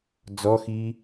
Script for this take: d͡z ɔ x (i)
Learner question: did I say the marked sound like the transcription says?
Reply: yes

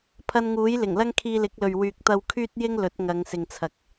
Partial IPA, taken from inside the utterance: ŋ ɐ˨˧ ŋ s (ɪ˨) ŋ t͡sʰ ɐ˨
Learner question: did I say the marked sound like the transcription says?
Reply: yes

